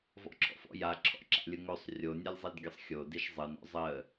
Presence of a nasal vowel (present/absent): absent